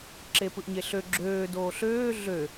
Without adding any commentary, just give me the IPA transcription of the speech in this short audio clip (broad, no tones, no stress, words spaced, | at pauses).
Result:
ǁepɯʔɲeɬø ɡ͡ǁøː doːɬøː ɮø